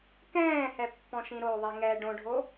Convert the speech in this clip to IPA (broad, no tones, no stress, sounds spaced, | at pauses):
k ɛ̃ː h ɛ pː ɔ̃ ʃ ĩ ɾ o ðˤ i ŋ ɛ ɖ õ ɖʱ o